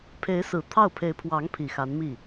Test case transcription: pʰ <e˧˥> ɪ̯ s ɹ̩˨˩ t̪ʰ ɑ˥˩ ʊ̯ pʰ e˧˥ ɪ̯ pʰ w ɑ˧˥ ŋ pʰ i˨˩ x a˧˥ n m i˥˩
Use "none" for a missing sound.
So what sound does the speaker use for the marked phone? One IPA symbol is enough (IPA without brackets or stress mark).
e˧˥